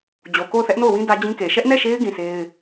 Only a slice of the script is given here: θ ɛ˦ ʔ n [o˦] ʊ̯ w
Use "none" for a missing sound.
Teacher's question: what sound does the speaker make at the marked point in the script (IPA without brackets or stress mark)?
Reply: o˦˨